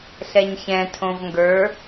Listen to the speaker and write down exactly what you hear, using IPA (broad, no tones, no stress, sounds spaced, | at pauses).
ɬ ɛ ɲ ç ɛ̃ tʰ õ v ŋ ɡ ə˞